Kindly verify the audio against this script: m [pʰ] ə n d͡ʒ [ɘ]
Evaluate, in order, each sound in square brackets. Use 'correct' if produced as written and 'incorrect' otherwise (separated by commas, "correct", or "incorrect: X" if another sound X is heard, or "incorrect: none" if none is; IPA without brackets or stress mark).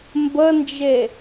incorrect: b, incorrect: e